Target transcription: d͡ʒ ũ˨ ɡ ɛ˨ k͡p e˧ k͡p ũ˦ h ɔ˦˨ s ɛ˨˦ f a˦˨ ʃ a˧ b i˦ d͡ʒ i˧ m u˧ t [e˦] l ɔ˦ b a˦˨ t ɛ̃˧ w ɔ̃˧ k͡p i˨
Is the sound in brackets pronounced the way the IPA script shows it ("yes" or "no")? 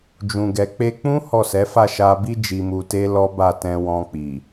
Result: yes